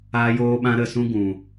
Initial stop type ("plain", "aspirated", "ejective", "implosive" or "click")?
implosive